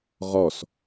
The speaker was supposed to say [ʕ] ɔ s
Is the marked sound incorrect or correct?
incorrect: ʁ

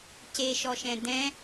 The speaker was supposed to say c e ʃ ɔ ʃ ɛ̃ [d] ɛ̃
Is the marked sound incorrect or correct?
correct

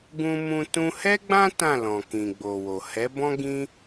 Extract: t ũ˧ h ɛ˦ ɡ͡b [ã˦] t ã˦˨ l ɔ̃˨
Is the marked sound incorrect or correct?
correct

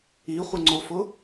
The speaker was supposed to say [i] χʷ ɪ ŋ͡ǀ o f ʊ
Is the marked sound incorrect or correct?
correct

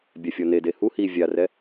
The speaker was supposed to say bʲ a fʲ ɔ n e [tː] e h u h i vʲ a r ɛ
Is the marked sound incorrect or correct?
incorrect: d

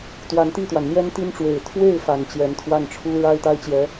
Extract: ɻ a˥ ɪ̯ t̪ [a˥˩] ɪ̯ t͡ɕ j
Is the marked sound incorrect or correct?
incorrect: a˥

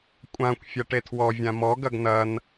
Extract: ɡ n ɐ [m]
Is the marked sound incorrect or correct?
incorrect: n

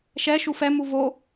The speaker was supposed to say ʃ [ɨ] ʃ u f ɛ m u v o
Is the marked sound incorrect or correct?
incorrect: ɛ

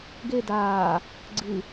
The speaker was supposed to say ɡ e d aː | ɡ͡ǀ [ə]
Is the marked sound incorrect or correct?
incorrect: ɨ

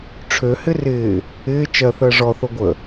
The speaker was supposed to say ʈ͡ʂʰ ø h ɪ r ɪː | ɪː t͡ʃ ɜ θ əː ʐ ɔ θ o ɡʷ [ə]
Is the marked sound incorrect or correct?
correct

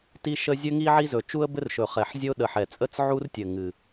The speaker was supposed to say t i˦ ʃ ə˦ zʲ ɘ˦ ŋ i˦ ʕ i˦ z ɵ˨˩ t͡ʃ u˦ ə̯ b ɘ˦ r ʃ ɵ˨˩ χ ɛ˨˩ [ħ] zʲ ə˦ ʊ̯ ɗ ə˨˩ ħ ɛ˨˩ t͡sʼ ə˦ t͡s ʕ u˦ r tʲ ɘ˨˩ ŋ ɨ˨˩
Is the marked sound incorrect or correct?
correct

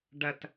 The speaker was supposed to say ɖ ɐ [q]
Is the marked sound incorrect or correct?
incorrect: t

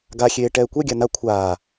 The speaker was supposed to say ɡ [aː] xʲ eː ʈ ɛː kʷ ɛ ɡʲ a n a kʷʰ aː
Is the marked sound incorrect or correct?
incorrect: a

